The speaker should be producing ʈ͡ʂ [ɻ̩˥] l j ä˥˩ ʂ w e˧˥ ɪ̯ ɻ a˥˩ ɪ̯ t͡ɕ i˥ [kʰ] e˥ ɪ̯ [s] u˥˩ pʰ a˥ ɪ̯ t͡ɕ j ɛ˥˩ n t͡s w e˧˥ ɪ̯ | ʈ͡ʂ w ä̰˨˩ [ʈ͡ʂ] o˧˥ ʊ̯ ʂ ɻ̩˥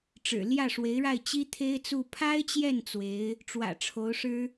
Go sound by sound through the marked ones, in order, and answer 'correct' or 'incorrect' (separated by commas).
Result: incorrect, incorrect, incorrect, incorrect